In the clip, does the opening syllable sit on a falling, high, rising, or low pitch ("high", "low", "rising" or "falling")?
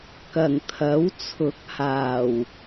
low